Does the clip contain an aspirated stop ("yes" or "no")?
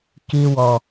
no